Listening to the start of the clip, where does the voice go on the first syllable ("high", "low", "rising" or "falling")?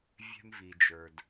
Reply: high